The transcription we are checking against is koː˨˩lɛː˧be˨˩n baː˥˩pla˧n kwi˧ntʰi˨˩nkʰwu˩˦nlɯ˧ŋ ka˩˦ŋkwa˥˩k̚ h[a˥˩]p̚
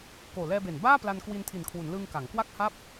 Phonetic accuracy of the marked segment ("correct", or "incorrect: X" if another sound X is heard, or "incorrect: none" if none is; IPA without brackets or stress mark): correct